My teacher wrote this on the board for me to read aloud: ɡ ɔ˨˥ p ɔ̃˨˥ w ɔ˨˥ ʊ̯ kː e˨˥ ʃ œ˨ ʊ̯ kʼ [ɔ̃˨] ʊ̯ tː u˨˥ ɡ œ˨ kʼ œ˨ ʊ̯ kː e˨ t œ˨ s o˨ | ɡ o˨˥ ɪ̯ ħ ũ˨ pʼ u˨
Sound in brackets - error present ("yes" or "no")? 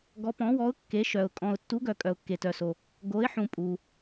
no